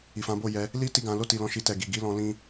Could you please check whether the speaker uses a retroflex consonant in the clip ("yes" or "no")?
no